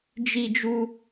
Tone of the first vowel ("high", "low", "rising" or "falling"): high